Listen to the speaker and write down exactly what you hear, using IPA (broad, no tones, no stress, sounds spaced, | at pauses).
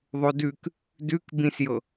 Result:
ðˤ o d ʉ k | d ʉ k b ĩ s j ɤ